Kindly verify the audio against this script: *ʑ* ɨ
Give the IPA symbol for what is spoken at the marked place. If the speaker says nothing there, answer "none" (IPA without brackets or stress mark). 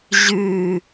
ʑ